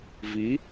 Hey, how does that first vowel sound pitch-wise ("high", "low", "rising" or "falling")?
rising